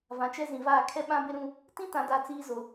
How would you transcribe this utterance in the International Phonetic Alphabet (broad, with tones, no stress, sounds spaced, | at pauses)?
v ã˨ t͡ʃ ɛ˦ z ĩ˨ v aː˦˨ kʰ ɛ˦ ɓ ã˦ b ɪ˦ ɾ ũ˦ | t ĩ˦ t ã˨ d a˨ t͡s iː˦ z o˨